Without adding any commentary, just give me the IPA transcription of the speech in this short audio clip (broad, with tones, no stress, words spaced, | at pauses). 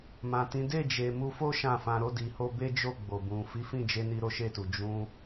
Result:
mã˨tĩ˨˦ de˦˨d͡ʒe˨ mu˧fo˦ ʃã˦˨fã˧ɾo˦ di˧ho˦ be˦d͡ʒo˦˨ ɡ͡bo˨bũ˨ fi˨˦fĩ˦˨d͡ʒe˧ni˧ ɾo˦ʃe˦˨tu˨ d͡ʒũ˧